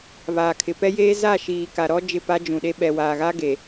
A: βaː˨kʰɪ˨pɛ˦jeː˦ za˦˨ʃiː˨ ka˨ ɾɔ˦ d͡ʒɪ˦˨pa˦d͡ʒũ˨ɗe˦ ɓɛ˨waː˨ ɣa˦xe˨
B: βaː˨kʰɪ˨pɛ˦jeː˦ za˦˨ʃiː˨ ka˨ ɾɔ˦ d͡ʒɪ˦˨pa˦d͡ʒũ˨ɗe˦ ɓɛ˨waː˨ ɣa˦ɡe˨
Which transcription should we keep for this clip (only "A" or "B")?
B